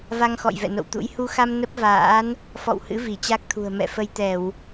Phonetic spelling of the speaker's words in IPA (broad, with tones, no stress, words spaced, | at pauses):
va˧ŋxɔ̰˧˨j vɛ̰˧˨no̰˧˨wt̪ṵ˧˥j hu˧xa˧m nə˦˥p̚va̰ː˧˥n | fɔ̰˧˨w hɨ̰˧˥ vi˧˩t͡ɕa˦˥k̚t̪ʰṳ˨˩ə̯ mɛ̰˧˨ fə˧jt̪ɛ˧˩˨w